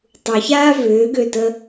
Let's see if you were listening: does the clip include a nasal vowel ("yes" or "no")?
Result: no